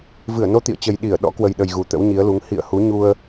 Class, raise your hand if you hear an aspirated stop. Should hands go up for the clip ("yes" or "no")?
no